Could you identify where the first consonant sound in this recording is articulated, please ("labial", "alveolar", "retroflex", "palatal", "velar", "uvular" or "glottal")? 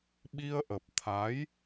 labial